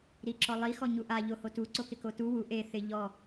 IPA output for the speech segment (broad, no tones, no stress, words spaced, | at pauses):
ɾiǁɔlˠi xɔɲuʔa ʎohotu ǀokɪkotu wu ʔe θɪ ʎɔ